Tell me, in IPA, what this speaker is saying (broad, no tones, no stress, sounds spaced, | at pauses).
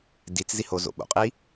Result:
d i t͡s z i h o z o̰ ɓ o̰ qʼ i